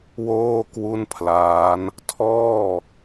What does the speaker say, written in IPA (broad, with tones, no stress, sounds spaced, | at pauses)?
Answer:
w oː˥˩ k w u˥˩ n pʰ l aː˦˥ n | tʰ ɔː˥˩